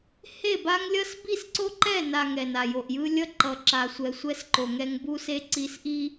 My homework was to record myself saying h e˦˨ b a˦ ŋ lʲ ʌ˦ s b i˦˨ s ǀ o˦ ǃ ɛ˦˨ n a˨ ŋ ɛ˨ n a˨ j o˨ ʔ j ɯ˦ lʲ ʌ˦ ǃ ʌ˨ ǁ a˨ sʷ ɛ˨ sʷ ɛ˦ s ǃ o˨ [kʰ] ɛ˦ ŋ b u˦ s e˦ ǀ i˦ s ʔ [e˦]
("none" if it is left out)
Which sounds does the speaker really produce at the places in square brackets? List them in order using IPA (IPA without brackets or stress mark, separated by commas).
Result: ŋ, i˦